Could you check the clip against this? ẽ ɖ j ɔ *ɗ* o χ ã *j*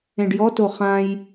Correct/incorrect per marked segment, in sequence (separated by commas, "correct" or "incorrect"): incorrect, correct